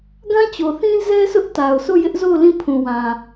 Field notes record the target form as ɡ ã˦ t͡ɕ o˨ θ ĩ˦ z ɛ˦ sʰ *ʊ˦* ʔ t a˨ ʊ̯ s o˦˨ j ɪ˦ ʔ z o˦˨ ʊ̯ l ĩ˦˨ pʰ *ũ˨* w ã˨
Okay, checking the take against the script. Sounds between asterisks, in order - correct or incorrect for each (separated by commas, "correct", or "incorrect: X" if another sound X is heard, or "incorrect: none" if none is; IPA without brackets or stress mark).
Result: correct, correct